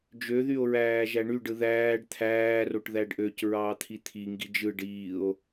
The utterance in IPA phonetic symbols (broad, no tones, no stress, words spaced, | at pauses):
d͡ʒøðyo̯ ɹæːʒæɳyɖɯ ðæːɖ t̪ʰæːroʈ ðæɖʔøcɹɑː t̪ʰit̪ʰiŋɡi d͡ʒɯ ɖiːo̯